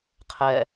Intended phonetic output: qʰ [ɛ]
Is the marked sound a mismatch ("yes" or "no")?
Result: no